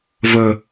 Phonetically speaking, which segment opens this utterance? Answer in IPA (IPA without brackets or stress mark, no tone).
v